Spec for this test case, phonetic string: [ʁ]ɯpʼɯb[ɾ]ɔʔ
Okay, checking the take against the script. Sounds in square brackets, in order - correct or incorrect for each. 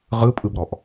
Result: correct, correct

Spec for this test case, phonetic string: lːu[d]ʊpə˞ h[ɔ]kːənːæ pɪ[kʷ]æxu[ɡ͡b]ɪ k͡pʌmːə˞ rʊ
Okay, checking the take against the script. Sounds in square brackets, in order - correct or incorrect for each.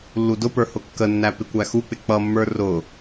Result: correct, incorrect, correct, incorrect

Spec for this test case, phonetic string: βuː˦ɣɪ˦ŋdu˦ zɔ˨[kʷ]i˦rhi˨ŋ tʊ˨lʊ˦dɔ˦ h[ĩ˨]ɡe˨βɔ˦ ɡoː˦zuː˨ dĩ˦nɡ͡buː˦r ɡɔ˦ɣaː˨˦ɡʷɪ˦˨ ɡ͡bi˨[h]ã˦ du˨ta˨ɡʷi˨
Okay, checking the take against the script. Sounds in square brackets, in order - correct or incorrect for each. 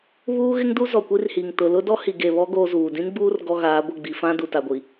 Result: correct, incorrect, incorrect

